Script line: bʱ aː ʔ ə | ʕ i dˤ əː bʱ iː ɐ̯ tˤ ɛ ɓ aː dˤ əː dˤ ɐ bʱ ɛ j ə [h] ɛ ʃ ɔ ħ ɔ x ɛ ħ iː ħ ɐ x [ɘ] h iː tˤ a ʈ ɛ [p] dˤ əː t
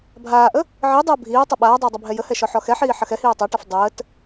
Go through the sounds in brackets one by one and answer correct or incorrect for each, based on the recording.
correct, incorrect: ɛ, incorrect: f

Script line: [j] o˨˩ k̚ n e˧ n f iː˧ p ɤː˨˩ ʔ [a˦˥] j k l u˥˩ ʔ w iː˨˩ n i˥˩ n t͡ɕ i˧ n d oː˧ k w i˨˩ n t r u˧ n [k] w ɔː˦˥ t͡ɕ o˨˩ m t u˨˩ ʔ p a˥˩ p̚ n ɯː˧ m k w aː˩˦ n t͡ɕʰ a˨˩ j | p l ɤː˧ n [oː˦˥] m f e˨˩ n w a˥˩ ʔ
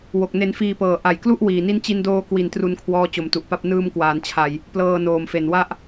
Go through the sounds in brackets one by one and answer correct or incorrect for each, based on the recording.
incorrect: w, incorrect: a˨˩, incorrect: kʰ, incorrect: oː˨˩

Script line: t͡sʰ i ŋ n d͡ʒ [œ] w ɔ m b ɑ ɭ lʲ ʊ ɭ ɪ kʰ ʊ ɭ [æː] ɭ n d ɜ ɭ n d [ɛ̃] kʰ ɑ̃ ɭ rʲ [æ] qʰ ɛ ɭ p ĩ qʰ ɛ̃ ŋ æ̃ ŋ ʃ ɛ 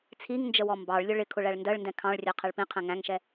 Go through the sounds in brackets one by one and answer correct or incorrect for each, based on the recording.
incorrect: ə, incorrect: æ, correct, incorrect: ɜ

